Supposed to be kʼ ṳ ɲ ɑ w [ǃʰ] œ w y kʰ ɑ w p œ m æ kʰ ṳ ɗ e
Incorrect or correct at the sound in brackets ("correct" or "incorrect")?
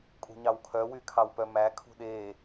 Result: incorrect